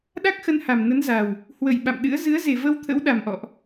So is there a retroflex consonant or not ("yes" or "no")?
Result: no